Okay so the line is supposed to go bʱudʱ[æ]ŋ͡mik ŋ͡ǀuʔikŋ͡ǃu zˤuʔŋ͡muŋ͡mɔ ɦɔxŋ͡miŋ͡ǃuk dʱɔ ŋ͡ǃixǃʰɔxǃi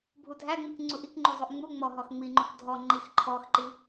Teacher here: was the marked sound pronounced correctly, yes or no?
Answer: yes